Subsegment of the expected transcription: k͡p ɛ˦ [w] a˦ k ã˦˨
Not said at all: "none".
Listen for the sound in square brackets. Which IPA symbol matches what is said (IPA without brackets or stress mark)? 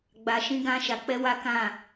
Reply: w